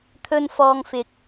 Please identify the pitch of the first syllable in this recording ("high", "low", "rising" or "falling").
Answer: high